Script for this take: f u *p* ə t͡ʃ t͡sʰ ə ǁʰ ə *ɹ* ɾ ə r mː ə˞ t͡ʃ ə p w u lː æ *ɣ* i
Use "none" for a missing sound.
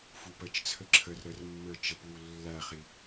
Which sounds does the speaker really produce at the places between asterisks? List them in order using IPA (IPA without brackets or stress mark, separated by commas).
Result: p, r, χ